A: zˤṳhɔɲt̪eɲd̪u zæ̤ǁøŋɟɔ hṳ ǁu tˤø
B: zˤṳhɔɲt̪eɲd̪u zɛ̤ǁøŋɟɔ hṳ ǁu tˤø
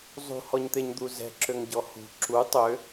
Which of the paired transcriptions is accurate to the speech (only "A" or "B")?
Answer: B